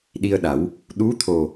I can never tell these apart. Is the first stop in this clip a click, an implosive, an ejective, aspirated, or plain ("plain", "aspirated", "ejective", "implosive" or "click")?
implosive